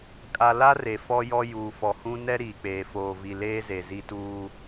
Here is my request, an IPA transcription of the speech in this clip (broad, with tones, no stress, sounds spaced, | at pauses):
kʼ a˨ l a˦ r e˨ f ɔ˦ j ɔ˦ j uː˨ f ɔ˨ h ũ˦ n ɛ˦ ɾ iː˨ k͡p eː˨ f oː˨ v i˨ l eː˦ z e˨ z i˦ t uː˦